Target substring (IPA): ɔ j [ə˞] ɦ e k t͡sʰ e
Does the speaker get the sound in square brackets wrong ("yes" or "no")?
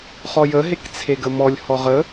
yes